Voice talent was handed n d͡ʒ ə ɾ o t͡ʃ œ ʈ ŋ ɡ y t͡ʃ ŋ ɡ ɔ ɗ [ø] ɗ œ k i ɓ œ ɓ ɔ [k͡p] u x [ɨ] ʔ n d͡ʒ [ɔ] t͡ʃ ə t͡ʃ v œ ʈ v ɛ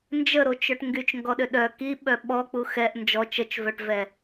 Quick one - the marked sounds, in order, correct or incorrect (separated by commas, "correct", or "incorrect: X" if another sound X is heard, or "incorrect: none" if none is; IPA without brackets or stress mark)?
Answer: correct, correct, incorrect: ɛ, correct